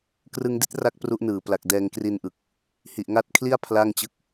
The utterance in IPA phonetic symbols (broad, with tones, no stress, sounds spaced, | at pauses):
k r ɯ˧ ŋ d i˦˥ t̚ r a˦˥ k̚ p r u˦˥ ʔ n ɯː˨˩ p l a˨˩ k̚ d ɛː˧ ŋ k r i˧ n ʔ ɯ˨˩ k̚ | h i˨˩ ʔ ŋ a˦˥ t̚ kʰ l i˥˩ a̯ pʰ l a˥˩ ŋ t͡ɕ ɯ˥˩ k̚